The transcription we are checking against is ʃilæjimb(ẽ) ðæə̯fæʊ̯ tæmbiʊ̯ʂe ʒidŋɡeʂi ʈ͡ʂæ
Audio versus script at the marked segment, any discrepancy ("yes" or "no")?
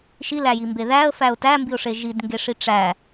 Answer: yes